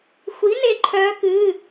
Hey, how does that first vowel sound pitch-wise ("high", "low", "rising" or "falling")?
rising